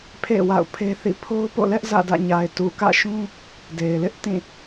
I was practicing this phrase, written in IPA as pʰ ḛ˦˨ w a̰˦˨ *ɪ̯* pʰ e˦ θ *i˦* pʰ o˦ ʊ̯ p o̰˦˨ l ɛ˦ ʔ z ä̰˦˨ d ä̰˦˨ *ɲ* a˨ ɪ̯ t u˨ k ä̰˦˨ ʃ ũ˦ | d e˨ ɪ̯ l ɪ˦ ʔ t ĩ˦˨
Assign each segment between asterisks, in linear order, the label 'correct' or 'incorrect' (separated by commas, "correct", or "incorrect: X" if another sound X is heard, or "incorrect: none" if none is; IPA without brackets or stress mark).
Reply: incorrect: ʊ̯, incorrect: ḭ˦˨, correct